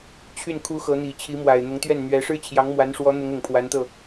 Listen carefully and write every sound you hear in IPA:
t͡ɕʰ y˥˩ n kʰ u˧˥ x ɤ˧˥ n̪ i˨˩ t͡ɕʰ i˧˥ m w a˨˩ ɪ̯ n̪ ʊ˧˥ ŋ t̪ ɥ ɛ˥˩ n n̪ ɥ ɛ˧˥ ʂ ɻ̩˥ t͡ɕʰ j ɑ˧˥ ŋ m w a˧˥ n ʂ w ɔ˧˥ n̪ ʊ˧˥ ŋ ʊ˨˩ ŋ pʰ w a˧˥ n t̪ ɤ˥˩

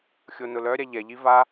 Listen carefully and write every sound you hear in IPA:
xʲ o n ʊ l œ ɾʲ a ʎ ɛ ʎ i v a

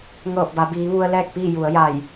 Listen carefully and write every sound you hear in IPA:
ŋ ɤː˧˩ p̚ b a˩˧ b iː˩˧ ʋ u˧ ə̯ l ɛː˥˨ k̚ p iː˥˨ j u˩˧ ə̯ j a˧˩ j

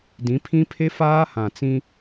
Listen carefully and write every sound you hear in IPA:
d ĩ˨˦ pʰ ĩ˦ pʰ e˦ f aː˦ h ã˨ t͡s ĩ˦

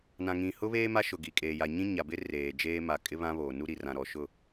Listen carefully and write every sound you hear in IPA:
n ã˨ ŋ ĩ˨ h ʊ˦ β eː˦ m a˦ ʃ ʊ˨ ɡ i˨ kʼ eː˨ j a˨ ɲ ĩ˦ ɲ a˨ b ɪ˦ r eː˨ d͡ʒ eː˦ m a˨ kʼ ɪ˦ β ã˦ β oː˨ n u˦ ɾ i˨ r ã˨ ɾ ɔ˨ ʃ ʊ˦˨

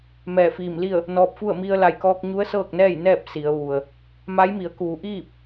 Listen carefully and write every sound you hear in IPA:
m ɛː˧˩ f iː˧˩ m l i˥˨ ə̯ | n ɔː˧ p̚ f u˥˨ ə̯ m i˧ ə̯ l a˧˩ j k ɔː˧ k̚ ɲ u˧˥ ə̯ s ɤː˥˨ k̚ n ɛː˥˨ j n ɛː˥˨ p̚ s i˩˧ ə̯ ʋ u˩ ə̯ | m a˧˥ j m i˩˧ ə̯ k uː˩˧ ʔ iː˥˨ p̚

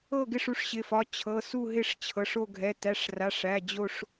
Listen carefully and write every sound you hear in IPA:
ɤ˦˨ ɡ ɪ˦˨ ʂ u˦˨ ʂ ɕ ɪ˩˧˩ f ɒ˩˧˩ t͡ɕʰ ɤ˩˧˩ s u˦˨ ɦ ɪ˦˨ ʂ t͡ɕʰ ɤ˩˧˩ ʂ o˦˨ ɡʱ ɛ˩˧˩ t æ˩˧˩ ʂ r a˩˧˩ ʂ æ˩˧˩ d͡ʑ o˦˨ ʂ

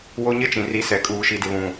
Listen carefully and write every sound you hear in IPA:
w o˦ ɲ ɪ˦ t͡ʃ ĩ˨ r i˨˦ s ɛ˨ kʼ uː˨ ʃ i˨ d ɪ˨ β ũ˨

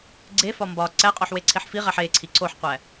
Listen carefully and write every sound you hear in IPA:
ɡ͡ǀ e f ɒ m b ɒ ǀ æ qʼ o ħ w e ǀʰ e ħ f i ʁ æ ħ e ǀʰ i ǀ o ħ qʷ æ

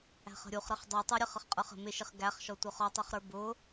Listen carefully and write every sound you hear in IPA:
æ̤ χ ə̤ ɾʲ u χ ɾ ə χ dˤ u tˤ u ɾʲ ə χ ə χ qʼ ə˞ χ ə̤ m ɪ ʃ ɪ χ ɡ æ χ ʃ ɔ tʷ ʌ χ ɔ tˤ u χ ɾ ə˞ b ʊ

